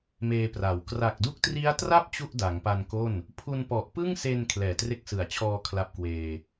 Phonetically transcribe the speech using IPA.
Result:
m eː˧ p r a˩˦ w k r a˨˩ k̚ d u˦˥ k̚ t r i˦˥ a̯ t r a˥˩ p̚ t͡ɕ u˥˩ ʔ d a˩˦ ŋ p a˧ n k o˥˩ n | pʰ u˧ n p ɔ˨˩ ʔ p ɯ˥˩ ŋ s e˧ n kʰ l ɛː˨˩ t r e˦˥ k̚ s ɯ˨˩ a̯ t͡ɕʰ ɔː˧ kʰ l a˦˥ p̚ k w eː˧

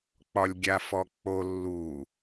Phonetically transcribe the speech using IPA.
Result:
k͡p ɒ lʲ ɡʲ a f ɔ k͡p o lː u

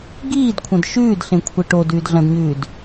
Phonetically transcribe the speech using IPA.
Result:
ɡ iː d kʷʰ ɐ̃ d ʃ ʉː d ɬ ẽ kʷʰ e ʈ o d ʉː d ɮ ɐ̃ d ɲ ʉː d

